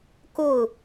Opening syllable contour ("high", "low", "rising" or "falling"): falling